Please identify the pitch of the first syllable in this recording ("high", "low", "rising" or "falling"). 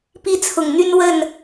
high